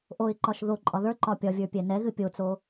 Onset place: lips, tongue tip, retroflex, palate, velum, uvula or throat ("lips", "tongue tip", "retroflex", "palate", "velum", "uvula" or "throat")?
throat